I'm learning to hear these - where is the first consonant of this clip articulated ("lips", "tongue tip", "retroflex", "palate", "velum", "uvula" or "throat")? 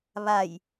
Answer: lips